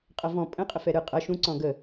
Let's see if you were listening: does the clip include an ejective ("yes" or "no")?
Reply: yes